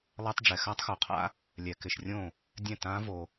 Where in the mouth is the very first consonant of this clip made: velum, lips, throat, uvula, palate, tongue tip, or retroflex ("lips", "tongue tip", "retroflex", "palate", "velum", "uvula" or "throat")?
tongue tip